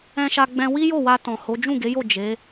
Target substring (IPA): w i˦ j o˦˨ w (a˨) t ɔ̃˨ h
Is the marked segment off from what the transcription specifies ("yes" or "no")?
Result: yes